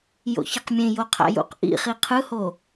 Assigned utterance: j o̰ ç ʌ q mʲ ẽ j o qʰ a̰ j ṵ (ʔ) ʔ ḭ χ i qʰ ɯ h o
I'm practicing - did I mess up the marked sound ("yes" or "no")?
yes